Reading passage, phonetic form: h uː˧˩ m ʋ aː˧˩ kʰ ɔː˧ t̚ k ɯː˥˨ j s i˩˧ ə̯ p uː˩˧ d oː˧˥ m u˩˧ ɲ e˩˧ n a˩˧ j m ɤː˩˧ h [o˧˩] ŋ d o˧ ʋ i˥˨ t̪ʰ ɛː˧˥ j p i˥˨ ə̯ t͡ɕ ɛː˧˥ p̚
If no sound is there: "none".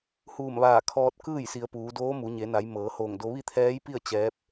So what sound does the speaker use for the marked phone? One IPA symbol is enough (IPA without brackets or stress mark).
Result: oː˧˩